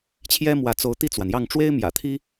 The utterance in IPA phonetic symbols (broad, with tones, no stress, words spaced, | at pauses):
t͡ɕʰjɛ˥mwä˧˥t͡so˧˥ʊ̯ t̪i˥˩t͡swa˩njɑ˥˩ŋ ʈ͡ʂwe˥ɪ̯mjä̰˨˩t̪ʰi˥